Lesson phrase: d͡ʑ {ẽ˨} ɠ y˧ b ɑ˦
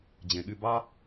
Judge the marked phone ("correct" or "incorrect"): correct